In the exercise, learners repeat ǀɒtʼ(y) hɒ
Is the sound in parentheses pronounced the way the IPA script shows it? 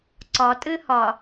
no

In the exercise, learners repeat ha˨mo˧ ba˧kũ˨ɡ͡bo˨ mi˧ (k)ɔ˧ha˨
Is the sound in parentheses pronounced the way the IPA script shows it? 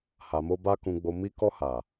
yes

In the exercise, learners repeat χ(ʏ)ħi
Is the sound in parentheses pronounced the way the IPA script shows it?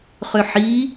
yes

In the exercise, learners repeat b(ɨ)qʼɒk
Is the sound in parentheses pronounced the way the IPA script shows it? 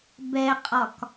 no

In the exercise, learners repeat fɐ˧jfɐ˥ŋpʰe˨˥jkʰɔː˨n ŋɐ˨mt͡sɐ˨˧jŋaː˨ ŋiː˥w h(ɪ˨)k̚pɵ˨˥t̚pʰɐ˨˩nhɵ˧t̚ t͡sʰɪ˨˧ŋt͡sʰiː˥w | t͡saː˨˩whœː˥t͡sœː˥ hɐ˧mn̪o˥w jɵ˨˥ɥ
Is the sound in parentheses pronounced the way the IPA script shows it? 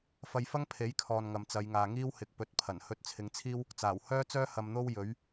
yes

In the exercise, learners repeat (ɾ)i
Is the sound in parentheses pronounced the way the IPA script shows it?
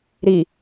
yes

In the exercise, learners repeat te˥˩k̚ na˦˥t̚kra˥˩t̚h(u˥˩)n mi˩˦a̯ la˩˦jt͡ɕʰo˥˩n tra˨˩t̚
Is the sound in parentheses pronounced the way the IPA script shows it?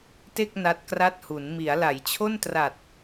no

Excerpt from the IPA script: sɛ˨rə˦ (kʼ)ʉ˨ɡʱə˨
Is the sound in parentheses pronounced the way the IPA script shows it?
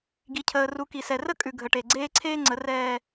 yes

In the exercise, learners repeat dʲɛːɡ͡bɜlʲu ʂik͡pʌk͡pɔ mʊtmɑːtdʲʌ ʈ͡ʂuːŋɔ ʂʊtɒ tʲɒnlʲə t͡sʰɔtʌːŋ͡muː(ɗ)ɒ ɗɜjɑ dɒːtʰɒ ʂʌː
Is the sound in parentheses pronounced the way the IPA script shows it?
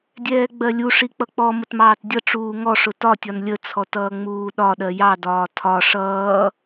yes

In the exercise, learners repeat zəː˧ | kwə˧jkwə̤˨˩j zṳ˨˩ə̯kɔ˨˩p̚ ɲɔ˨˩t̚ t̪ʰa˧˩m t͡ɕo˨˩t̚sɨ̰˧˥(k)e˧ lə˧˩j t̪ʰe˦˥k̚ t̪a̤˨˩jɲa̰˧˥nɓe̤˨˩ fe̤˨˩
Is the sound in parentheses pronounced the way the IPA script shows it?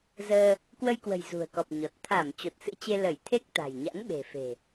no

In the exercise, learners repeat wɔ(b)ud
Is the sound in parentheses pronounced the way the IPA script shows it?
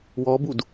yes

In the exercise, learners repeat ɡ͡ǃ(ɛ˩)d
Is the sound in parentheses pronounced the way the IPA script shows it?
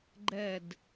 no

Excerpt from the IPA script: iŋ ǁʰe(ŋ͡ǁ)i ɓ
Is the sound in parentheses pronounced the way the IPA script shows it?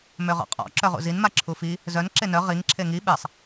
no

